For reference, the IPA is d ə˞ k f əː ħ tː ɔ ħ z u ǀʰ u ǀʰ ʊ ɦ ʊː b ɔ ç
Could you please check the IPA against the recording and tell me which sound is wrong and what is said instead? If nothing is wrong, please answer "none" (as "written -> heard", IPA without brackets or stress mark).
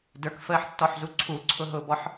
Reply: ç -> ħ